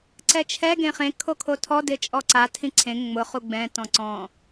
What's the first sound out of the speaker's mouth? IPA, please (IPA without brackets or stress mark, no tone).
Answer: ǀ